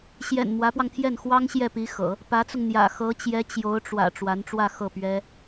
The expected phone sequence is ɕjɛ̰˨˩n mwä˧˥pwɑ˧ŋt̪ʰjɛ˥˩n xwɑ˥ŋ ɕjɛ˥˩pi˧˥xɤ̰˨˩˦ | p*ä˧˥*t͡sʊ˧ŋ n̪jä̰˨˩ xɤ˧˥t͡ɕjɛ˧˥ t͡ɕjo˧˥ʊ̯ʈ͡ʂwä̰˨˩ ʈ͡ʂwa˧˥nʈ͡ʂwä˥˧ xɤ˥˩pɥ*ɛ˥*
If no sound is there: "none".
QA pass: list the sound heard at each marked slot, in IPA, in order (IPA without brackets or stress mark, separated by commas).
ä˧˥, ɛ˥